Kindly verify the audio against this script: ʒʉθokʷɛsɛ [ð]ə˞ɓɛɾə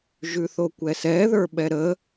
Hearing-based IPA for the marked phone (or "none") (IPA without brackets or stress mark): ð